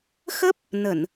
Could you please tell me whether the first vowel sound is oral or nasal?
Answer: oral